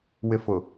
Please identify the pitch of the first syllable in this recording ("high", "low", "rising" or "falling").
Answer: low